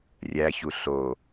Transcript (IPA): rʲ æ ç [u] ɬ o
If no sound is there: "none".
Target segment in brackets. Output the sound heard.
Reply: u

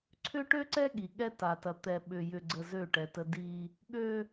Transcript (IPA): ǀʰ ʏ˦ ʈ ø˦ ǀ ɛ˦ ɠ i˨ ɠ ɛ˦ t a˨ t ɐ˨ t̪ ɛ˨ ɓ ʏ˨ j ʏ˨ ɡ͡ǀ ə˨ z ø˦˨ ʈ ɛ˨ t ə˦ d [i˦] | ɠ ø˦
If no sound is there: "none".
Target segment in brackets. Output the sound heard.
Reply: i˦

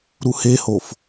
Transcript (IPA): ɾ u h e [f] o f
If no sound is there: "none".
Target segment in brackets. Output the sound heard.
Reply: h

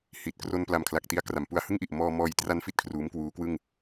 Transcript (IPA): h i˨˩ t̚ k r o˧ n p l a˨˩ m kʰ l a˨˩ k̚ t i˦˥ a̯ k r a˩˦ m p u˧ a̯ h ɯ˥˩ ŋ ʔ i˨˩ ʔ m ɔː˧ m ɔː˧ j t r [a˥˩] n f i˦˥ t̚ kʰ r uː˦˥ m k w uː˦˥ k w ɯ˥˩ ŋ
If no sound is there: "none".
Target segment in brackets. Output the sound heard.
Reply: a˧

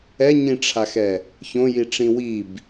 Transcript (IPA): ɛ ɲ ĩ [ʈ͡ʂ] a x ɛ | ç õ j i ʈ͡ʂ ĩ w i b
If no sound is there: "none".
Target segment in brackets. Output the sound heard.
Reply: ʈ͡ʂʰ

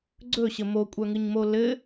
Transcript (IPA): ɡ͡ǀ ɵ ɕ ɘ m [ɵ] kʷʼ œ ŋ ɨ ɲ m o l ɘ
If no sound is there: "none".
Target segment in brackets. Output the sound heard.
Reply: o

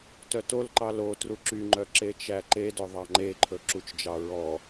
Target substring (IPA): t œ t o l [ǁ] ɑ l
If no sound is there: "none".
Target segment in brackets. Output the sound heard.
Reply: ǃ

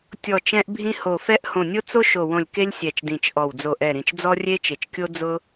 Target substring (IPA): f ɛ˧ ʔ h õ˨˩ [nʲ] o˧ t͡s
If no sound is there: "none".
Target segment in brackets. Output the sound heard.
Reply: nʲ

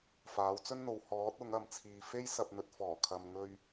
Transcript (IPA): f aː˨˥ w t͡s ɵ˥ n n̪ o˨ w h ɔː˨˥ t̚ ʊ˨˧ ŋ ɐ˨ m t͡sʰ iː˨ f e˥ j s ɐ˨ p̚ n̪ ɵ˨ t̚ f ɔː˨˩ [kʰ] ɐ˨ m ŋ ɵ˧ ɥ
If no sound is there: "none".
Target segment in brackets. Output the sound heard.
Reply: kʰ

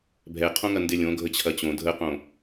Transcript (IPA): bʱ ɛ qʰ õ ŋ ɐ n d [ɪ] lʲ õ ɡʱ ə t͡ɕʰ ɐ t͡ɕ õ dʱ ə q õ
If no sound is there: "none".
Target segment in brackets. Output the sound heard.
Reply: ɪ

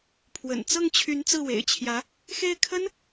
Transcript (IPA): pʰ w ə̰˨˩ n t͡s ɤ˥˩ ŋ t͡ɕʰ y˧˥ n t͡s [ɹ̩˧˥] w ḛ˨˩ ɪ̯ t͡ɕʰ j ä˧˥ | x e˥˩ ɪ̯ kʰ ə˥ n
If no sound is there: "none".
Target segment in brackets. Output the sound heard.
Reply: ɹ̩˥˩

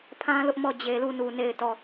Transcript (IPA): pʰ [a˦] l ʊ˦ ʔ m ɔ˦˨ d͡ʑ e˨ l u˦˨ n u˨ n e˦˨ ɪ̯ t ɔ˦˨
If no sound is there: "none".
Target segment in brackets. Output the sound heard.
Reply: ã˦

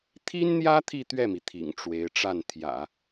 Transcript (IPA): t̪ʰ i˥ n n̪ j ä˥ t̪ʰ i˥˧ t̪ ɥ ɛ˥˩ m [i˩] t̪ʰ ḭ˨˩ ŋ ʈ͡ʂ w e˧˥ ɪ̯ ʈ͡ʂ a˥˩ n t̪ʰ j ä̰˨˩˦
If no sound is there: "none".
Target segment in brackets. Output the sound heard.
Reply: i˩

